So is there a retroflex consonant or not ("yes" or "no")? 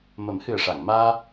yes